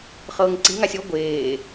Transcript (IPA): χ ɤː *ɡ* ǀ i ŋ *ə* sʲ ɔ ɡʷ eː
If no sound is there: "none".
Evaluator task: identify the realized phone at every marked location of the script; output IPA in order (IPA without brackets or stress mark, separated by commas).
ŋ, a